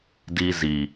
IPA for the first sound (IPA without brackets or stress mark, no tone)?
d